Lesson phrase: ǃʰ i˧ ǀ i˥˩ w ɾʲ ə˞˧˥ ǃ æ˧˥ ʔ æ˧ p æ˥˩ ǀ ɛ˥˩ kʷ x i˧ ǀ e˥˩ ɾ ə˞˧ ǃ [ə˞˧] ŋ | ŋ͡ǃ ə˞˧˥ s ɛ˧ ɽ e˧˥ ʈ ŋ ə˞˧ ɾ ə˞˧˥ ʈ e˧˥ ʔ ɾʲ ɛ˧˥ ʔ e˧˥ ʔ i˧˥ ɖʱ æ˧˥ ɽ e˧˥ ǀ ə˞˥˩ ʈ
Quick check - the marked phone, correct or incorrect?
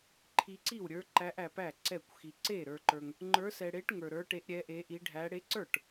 correct